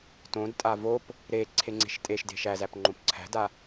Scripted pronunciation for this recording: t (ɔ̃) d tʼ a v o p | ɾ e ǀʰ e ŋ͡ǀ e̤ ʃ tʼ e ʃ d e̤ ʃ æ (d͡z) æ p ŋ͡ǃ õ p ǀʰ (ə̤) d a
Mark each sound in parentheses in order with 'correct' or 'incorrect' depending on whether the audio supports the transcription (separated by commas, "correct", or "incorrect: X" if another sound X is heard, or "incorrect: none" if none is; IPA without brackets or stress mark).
incorrect: õ, incorrect: z, incorrect: æ̤